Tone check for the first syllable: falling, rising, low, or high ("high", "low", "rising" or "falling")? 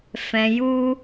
low